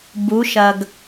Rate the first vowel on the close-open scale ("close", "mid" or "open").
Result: close